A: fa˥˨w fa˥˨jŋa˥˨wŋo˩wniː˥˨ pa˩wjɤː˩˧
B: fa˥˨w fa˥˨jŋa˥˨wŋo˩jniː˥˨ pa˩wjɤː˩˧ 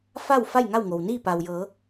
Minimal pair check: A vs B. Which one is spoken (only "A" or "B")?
A